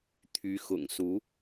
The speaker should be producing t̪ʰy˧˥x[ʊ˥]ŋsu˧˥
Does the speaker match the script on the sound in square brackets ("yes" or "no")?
no